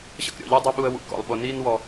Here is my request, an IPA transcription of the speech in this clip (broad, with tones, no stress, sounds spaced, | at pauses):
ɕ ə̰˦ k ɾʲ ɔ̰˨ ʎ əː˦ dˤ i˦ ɓ u˦ ə̯ w ṵ˨ k ɔ̰˨ lˠ ɓ o˨ n iː˦ n w ɔ˨